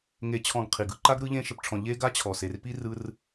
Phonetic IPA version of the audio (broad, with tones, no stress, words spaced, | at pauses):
ŋe˧t͡ɕʰɔ̃˧ɡ qʰi˨ɡɯ˧ ǃa˦ɡ ɾɯ˧ʎẽ˧ ʃə˨pʈ͡ʂʰɔ̃˨ ʎe˦ ɡa˦t͡ɕʰɔ˨se˨rpi˦ rɯ˧r